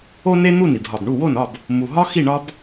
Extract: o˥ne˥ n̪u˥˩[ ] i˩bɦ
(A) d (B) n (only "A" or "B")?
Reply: B